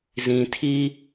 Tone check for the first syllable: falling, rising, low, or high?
low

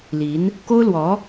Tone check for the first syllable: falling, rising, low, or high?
rising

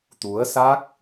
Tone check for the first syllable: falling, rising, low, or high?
rising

